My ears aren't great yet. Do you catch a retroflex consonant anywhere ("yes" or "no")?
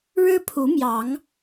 yes